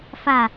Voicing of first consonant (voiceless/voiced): voiceless